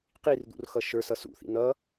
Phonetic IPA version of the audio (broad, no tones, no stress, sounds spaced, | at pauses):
q i r d̪ ṵ r x ʌ ʃ ə˞ s ʌ s ṵ θ ḭ n̪ ʌ